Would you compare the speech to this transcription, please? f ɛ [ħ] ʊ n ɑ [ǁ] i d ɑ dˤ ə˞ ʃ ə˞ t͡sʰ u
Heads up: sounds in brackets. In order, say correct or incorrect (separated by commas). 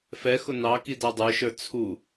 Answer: incorrect, incorrect